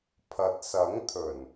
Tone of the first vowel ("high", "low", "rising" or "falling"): low